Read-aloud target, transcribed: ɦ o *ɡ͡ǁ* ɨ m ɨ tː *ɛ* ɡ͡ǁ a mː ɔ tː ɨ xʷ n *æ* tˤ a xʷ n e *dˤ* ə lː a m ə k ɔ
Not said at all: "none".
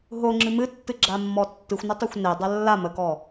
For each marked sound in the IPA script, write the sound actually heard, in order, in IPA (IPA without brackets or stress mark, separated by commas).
ŋ͡ǁ, ɨ, ə, dˤ